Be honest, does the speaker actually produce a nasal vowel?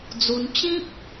yes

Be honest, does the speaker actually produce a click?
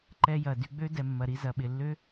yes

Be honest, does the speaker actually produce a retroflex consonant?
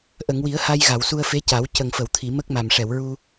yes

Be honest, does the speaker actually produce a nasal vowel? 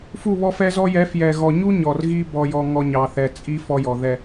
no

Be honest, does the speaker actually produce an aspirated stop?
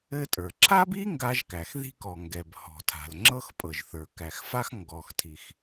yes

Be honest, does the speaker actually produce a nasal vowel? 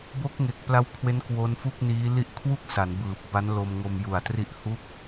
no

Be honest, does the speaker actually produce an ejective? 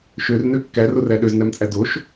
yes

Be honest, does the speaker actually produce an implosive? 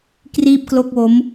no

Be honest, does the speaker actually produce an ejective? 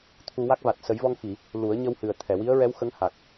no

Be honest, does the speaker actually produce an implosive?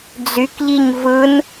no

